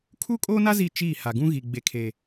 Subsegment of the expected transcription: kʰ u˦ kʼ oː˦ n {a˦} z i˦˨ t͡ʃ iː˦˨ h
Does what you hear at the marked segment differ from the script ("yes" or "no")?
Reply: no